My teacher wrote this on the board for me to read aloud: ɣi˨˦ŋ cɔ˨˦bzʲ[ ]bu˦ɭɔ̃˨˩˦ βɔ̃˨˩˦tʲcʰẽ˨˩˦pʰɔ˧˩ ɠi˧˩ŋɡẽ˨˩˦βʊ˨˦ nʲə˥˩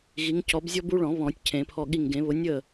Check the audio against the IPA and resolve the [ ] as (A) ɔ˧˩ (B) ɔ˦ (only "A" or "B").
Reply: B